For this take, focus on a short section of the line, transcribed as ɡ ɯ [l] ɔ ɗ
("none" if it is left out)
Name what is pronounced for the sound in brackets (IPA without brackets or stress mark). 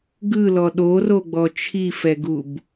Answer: l